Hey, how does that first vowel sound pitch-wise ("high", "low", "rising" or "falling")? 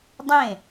falling